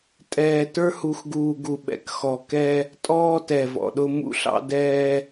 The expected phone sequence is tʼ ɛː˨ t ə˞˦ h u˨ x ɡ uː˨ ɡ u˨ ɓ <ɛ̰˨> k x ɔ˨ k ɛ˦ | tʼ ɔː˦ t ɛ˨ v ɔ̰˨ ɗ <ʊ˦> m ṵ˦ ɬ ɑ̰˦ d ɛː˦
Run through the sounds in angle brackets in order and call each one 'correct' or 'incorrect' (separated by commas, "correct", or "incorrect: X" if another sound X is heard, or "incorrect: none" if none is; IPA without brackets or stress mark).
correct, correct